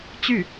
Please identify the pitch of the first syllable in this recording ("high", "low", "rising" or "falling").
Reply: falling